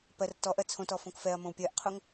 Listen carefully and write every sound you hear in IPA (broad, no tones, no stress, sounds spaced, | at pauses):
p ɜ r t ɔ ʔ ɜ t͡sʰ õ t ɔ f õ k f ɛ ɐ̯ m õ w pʲ ɜ ʔ qʰ o ŋ